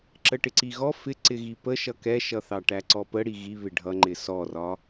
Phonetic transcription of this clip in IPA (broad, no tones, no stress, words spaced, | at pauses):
ǁəʈɪǀiɣɔ fɪ ǀɪɣipə ʃʌkɛʃʌ θɑʈæǀɔpə ɽiɣiβɪ ɖʱʌŋ͡ǃɪ sɔrɒ